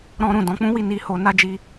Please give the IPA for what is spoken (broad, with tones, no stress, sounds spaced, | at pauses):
ɾ ɔ̃˦ ɾ ũ˦˨ d ɔ̃˨˦ k͡p ũ˦ w i˦˨ n i˧ h o˧ n a˦ d͡ʒ i˧